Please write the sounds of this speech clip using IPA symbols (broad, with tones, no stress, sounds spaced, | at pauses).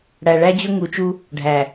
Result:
ɽ æ˨ ɭ æ˦ d͡ʑ ɵ˦ ŋ u˨˦ t͡ʃ u˦ | ɖʱ æ˨